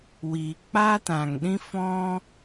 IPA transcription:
wiː˨ k͡paː˦tã˨ŋɗĩ˦ fɔ̃˦

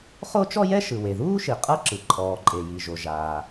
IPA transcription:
χo˥t͡ʃɔ˥jɛ˥ ʃɯ˩we˩ðuː˥ʃi˩ qʼɤ˥ǁɯ˩ ǃʼɔː˩ǃʼe˩ji˩ʒo˩ ʒaː˩

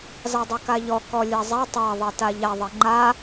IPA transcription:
zɑdˤɛkaʎɔ kɔlʲazˤɛ tˤa ðˤɛtaʎaðˤɛ ŋ͡ǃa

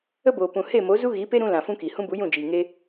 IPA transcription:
ə˦boː˨pũ˨ he˦˨mo˨˦ zu˦ɣi˨˦pe˦ɾũ˧ lã˨fũ˦ki˨ hũ˦bu˨˦jũ˦˨d͡ʒiː˨ ŋe˦

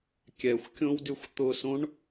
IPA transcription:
kʲɛxʷ kʲõwdyxʷt̪ʊsõɳ

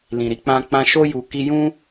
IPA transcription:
lĩ˨ɾi˧k͡pã˧ k͡pã˧ʃo˦ ju˧ki˦ jũ˦

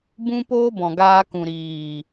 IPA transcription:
bũ˦poː˦ bɔ̃˨ɡaː˧ kũ˨ɾiː˨

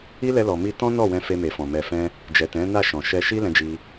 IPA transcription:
i˦lɛ˧ lɔ˨mi˧ tɔ̃˦ nɔ˦˨wɛ̃˧fe˧ me˨fɔ̃˨ mɛ˨fɛ̃˧ | d͡ʒɛ˨tɛ̃˨˦na˦˨ʃɔ̃˨ ʃɛ˧ʃi˦ lɛ̃˧d͡ʒi˧

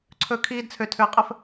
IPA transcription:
ǀʰɵ˦˨kʰiː˦dt͡sʰø˧ tʰø˧ə̯qʼə˦f

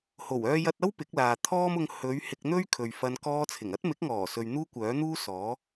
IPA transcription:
ho˨˩wœː˧jɐ˧t̚ɐ˥w pɪ˨˥k̚laː˨t̪ʰɔː˥mʊ˧ŋ hɵ˨˧ɥ hɪ˧k̚n̪ɵ˥ɥkʰɵ˨ɥfɐ˧n kɔː˧t͡sʰɪ˨˩ŋɐ˥t̚ mɪ˨˥k̚ŋɔː˨˩sɵ˨ɥ n̪uː˥kʷœː˨˥n̪uː˥ sɔː˨˥

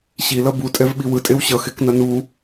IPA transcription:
ɕilʌ butʼɛvɓi wɯtʼew ɕʌxeknʌ nu

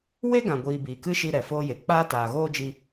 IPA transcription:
we˦ɡã˨ɡʷiː˨ biː˨kɨ˦ʃi˧ ɾɛ˨foː˦je˨ k͡paː˦taː˨ɣoː˦d͡ʒi˧

